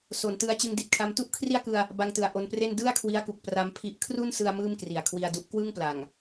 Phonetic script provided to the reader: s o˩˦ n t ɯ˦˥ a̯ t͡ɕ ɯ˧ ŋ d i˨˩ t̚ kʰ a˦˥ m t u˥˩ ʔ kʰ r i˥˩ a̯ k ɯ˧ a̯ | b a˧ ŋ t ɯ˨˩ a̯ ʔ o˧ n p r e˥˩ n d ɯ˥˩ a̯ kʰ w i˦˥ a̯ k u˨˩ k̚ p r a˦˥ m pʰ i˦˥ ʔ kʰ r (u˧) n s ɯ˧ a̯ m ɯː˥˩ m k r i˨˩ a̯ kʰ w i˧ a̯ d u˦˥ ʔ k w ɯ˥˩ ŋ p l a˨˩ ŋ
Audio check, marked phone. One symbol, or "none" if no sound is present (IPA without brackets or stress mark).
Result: u˥˩